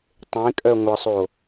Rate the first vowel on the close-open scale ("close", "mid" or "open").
mid